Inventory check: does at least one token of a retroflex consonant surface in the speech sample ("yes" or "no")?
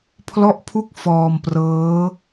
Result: no